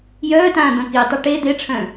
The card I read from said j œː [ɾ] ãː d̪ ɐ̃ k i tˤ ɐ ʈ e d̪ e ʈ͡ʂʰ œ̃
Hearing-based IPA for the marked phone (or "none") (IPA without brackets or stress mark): t